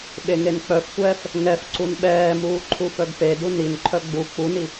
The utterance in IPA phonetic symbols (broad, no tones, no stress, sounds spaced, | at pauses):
ɓ e ŋ e n k͡p œ f tʷ ɛː f | ŋ ɛ f ǀ u n ɓ ɛː m uː ǃʰ u f œ ɡ p e d u n i n ǃʰ œ ɡ͡b u k͡p u n i